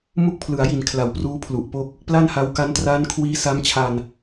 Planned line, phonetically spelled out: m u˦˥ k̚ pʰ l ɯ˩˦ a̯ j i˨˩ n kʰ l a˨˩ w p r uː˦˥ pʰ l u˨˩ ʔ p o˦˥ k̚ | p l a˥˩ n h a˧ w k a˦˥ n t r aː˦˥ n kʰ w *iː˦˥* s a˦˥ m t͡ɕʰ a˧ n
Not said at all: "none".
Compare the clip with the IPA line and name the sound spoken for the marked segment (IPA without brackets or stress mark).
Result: iː˦˥